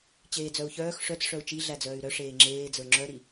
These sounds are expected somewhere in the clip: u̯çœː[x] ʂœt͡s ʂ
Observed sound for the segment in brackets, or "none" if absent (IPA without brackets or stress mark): x